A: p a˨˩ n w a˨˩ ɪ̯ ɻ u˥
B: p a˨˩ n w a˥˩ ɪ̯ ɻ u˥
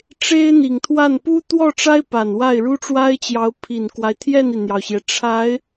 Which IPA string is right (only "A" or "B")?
B